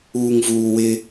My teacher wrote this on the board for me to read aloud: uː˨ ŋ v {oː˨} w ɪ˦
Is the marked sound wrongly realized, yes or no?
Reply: yes